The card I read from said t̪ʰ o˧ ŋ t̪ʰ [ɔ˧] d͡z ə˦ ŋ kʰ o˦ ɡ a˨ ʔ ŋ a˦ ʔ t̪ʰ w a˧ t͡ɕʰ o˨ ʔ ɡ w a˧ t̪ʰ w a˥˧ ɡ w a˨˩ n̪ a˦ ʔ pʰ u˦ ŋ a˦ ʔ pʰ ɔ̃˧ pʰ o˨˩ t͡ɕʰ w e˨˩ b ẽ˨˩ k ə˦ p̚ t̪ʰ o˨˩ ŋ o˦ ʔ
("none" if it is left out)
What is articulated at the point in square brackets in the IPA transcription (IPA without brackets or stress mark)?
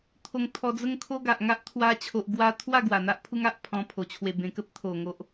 ɔ˧